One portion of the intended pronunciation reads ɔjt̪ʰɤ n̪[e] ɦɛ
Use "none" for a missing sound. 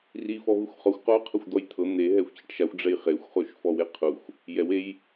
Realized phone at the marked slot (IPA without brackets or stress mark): e